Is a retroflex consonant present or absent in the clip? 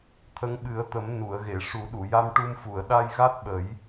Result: present